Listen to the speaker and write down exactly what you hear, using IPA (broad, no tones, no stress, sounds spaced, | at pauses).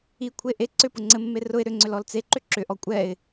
i kʷʰ e ʔ e ǀ ʏ p ʊ ŋ͡ǀ ɘ mː e r ʊ ɪ̯ ɾ ʏ ŋ͡ǀ ʏ l ɔ l t͡s e ǃ ʏ ǁ ʏ ʔ ɔ kʷʼ ɛ ɪ̯